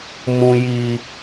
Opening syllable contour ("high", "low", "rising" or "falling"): high